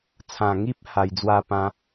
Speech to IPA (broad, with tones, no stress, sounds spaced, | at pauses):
t͡sʰ ã˨˩ ŋ i˦ p̚ h a˧ j d͡z w a˥˧ p ã˦